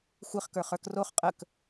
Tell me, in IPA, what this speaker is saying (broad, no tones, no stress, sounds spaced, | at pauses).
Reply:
xʷ ɪ χ k ə˞ χ ə˞ k r o χ qʼ ə k